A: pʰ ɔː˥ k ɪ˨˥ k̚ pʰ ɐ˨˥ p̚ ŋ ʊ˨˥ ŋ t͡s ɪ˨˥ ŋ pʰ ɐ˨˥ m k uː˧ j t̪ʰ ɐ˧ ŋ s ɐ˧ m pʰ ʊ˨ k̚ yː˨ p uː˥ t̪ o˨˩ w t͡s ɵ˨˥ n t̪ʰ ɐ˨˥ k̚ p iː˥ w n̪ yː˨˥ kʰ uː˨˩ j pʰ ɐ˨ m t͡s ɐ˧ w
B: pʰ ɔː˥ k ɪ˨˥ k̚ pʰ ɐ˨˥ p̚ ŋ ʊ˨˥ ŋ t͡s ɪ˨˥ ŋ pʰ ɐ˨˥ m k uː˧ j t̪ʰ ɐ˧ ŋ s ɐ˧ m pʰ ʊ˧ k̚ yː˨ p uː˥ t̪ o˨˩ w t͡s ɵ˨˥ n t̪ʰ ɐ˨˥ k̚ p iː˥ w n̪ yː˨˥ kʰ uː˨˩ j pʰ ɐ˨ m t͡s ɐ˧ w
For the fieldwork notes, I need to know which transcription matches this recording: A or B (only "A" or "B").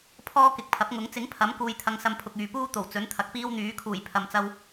A